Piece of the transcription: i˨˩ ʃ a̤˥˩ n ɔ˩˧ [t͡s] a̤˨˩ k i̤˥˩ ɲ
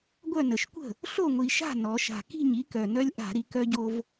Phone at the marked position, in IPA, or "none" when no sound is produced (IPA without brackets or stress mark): ʃ